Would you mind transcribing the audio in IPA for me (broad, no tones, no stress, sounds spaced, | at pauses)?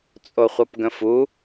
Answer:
t͡sʼ o χʷ ʌ p ɡ ə̃ f u